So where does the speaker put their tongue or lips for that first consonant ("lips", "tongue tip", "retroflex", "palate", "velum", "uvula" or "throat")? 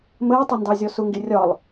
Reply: lips